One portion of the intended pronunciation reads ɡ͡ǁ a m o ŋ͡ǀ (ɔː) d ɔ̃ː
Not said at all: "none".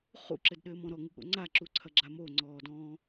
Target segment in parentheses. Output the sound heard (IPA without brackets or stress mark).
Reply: ɔː